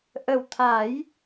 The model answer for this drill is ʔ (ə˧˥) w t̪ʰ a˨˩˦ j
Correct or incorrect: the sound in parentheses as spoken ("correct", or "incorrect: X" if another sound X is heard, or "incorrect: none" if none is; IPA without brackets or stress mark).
incorrect: ə˨˩